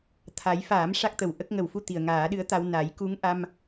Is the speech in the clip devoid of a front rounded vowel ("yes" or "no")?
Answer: yes